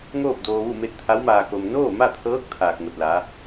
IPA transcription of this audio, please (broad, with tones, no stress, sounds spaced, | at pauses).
ŋ oː˥˨ p̚ d oː˧ ʋ u˥˨ m e˥˨ t̚ t̪ʰ a˧˥ w m aː˧ k o˧ m n oː˥˨ m a˥˨ t̪ʰ ɤː˧˥ k̚ t̪ʰ aː˧ k̚ ŋ o˧ t̚ l a˧˥